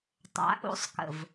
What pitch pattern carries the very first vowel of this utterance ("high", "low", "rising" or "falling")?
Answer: rising